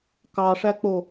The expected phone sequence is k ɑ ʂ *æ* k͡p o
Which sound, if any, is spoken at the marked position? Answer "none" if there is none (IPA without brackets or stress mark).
æ